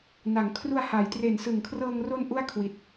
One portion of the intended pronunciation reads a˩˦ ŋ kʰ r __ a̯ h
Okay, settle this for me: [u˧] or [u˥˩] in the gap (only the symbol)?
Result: u˧